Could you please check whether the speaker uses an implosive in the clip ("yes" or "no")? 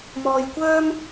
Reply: no